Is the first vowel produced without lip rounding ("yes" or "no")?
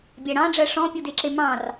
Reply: yes